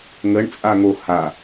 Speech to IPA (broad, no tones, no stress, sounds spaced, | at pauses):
ŋ ə ɳ t͡sʼ a ŋ o h a